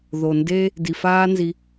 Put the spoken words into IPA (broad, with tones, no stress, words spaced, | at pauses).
ðo˨nde˦ | di˨faː˦nzi˧